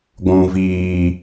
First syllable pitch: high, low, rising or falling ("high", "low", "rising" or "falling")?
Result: low